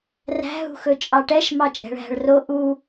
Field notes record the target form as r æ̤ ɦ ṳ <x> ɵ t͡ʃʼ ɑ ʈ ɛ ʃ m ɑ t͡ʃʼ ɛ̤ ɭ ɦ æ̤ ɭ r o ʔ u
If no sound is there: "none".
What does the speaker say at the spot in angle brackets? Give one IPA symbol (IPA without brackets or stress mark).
x